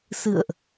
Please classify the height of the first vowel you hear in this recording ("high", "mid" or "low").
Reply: high